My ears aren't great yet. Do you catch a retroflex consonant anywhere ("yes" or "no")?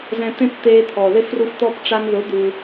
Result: yes